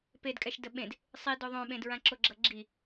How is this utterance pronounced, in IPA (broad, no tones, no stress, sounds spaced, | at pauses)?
p e d kʼ ɛ ʃ d ə ɓ ẽ d | sˤ i d o ðˤ õ ɓ ẽ d ɹ ã ǁ o ɡ͡ǁ ʌ ɡ͡ǁ i